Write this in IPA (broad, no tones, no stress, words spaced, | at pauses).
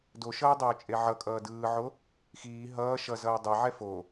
doʃʌːdˤoːt͡ʃʼe ʕʌkʼʌː dɯːʕo | xiː ɦʌː ʃʌzʌː dˤɛʕɛ fo